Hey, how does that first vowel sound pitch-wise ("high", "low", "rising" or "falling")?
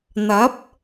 rising